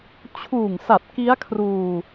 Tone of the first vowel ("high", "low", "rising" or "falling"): low